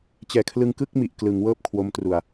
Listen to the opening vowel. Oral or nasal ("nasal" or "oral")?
oral